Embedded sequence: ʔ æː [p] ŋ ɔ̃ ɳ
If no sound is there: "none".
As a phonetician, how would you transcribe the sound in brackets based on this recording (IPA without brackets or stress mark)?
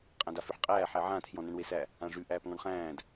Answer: p